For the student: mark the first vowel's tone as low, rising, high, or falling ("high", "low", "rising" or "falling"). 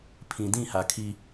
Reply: low